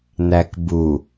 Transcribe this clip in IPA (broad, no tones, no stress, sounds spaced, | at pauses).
n̪ æ k b u